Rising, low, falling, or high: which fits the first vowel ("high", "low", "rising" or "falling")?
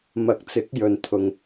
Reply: rising